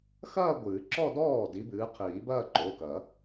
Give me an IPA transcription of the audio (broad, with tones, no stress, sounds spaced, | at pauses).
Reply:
x ɐː˥˧ ɡʷ ɨː˨˩˦ ǁ ɔ˥˧ d ɔː˥˩ d i˨˦ b ɨː˨˦ qʰ iː˨˩˦ b ɐː˥˧ ǃ o˩˧˩ k ɐ˨˩˦